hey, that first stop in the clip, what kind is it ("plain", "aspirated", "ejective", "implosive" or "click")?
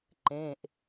click